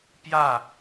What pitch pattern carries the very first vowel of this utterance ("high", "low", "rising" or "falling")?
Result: falling